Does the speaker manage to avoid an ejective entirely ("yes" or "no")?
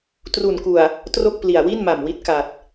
yes